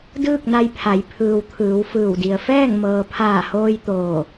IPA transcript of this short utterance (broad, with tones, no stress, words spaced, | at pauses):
dɯː˥˨k̚na˧jpʰa˩˧j pʰɯː˩wt̪ʰɯː˩˧w fɯː˧˩wdi˩ə̯ fɛː˥˨ŋmɤː˩pʰaː˧˩hoː˧j t̪oː˧˩